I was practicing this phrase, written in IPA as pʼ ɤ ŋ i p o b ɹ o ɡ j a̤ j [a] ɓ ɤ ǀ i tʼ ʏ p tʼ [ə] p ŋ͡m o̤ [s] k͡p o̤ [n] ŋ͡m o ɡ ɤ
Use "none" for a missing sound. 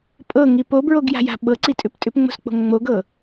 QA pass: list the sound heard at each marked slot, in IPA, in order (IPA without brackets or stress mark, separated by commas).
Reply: a̤, ʏ, s, ŋ